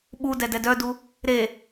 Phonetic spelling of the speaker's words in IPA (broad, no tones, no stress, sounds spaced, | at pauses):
ɓ u d ɛ d ɛ d œ d u | ɾ e